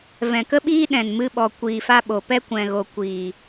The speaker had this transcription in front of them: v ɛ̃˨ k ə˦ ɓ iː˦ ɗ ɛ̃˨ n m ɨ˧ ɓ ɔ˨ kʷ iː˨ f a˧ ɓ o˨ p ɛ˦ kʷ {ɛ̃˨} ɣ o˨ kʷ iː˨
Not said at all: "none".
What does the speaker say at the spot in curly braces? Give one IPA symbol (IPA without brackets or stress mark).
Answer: ɛ̃˨